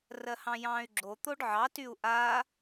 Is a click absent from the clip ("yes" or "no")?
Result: no